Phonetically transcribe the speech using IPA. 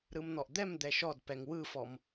ɾ ɯ m n̪ ɔ ʔ d̪ ɛ m d̪ ɛ ʃ ɔ d p ɛ ŋ w ɯ f ɔ m

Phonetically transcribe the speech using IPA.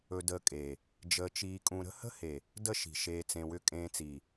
ɵ˧ d əː˧ kʼ eː˨ | d͡ʒ əː˧ t͡ʃ iː˧ kʼ ũ˧ ɾ ə̤˦ h ə̤˦ h e˨ | d ə˦ ʃ i̤˨ ʃ eː˧ t͡s ẽ˧ w ʏ˦ kʼ ẽː˧ t͡s iː˨

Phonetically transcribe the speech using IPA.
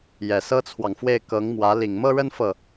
j ɛ˨˩ s ɤ˥ t͡sʰ w ɑ˨ ŋ f w e˥˩ ɪ̯ k ɤ˧˥ ŋ m w ä˧˥ l i˨˩ ŋ m ɤ˥˧ ɻ ə˥˧ n f ɤ˥˩

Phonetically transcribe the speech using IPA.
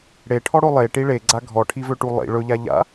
ɽ e ʈʰ ɔ ɽ o lˠ e ʈ i ɭ e ɡ͡ǀ a ɡʱ ɔ ʈʰ i v ø ʈ u lˠ ḭ ɭ ɵ ʎ a ʎ a̰

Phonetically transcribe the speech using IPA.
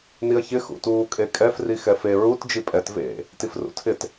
n i ɐ̯ ç ɪ x ṵ t uː kʼ e kʼ ɛ f r i x ɛ f e ɹ u t d͡ʒ i pʼ ɛ t v ḛ | t i f r ṵ tʰ ɪ t

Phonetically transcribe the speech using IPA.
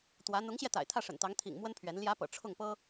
t̪ w ä˧˥ n̪ ʊ˧˥ ŋ ɕ j ɛ˧ t̪ a̰˨˩ ɪ̯ t̪ʰ ä˥˩ ʂ ə̰˨˩ n t̪ ɑ˧˥ ŋ t̪ʰ ḭ˨˩ ŋ m w ə˥ n pʰ ɥ ɛ˧˥ n l j ä˧˥ p ɤ̰˨˩ ʈ͡ʂʰ ʊ˥˩ ŋ p ɤ˥

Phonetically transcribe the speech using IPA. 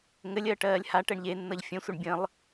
ŋ ɘ lʲ ɜ ʈ ɜː lʲ h a ʈ ɛ ɳ ʎ e nː ʌ ʎ fʲ ə̃ sʷ ʌ ɳ bʲ ə̃ lˠ

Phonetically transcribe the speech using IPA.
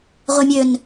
ʁʷ e mʲ ø n

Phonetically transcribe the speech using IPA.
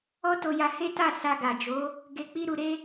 ɔ˦ t o˧ j a˧ h e˦ t a˦˨ s a˧ ɡ a˨ d͡ʒ o˨˦ | ɡ e˧ k͡p i˦ ɾ u˧ ɾ e˦

